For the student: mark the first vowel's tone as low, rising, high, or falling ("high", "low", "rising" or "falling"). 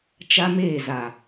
high